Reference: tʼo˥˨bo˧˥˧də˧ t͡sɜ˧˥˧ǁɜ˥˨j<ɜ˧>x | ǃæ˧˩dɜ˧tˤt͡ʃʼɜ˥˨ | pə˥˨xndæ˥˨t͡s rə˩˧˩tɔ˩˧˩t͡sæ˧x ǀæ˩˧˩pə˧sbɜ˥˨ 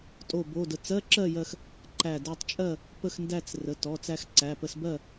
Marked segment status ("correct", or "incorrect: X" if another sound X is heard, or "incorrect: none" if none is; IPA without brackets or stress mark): correct